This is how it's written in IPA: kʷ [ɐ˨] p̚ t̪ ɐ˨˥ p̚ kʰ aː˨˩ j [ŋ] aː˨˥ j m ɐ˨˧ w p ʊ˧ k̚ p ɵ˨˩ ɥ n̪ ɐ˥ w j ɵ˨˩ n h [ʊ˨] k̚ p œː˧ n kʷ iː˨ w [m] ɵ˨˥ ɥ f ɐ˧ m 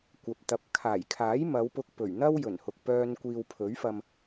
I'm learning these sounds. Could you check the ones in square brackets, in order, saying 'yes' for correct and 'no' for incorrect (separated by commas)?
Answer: yes, no, yes, no